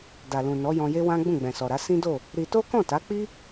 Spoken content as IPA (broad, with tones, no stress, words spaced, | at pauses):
da˨lũ˨nɔ˨˦ jɔ̃˧je˦wã˦ ɡ͡bũ˦˨ɡ͡bɛ̃˨sɔ˨ɾa˨˦ sĩ˦do˦˨ | ɾi˧ to˦kɔ̃˦˨ta˨˦ k͡pi˦